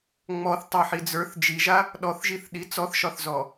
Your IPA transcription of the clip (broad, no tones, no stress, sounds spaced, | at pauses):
ŋ͡m ɔ θ tˤ a ħ i d͡z ə˞ θ d͡ʒ i ʒ a | ɗ ɔ θ ʒ i θ ɗ i t͡s ɔ θ ʃ ɒ θ z ɔ